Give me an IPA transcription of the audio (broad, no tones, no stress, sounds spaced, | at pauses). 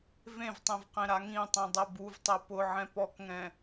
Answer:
v ẽ v tˤ ẽ v q ẽ ɾ a ŋ ĩ tˤ ẽ dˤ ɛ b u v tˤ ɛ p ʊ ʕ ɛ̃ p ɔ k ŋ ɛ̃